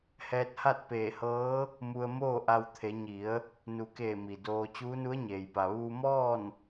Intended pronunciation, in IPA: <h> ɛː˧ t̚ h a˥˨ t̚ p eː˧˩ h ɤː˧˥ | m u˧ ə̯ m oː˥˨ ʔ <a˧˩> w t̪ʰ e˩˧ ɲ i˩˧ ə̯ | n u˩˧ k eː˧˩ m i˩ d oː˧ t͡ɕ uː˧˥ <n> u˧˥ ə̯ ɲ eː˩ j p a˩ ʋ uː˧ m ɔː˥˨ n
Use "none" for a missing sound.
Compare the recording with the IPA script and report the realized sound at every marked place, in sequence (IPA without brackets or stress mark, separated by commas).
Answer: h, a˧, n